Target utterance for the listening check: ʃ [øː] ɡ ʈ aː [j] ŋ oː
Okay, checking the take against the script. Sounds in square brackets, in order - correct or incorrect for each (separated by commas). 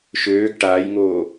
correct, correct